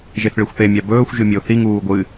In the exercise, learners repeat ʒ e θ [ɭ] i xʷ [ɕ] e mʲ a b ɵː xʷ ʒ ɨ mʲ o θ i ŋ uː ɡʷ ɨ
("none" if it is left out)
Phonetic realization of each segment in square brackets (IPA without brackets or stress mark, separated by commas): ɭ, θ